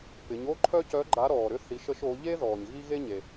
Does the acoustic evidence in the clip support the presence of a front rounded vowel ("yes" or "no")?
yes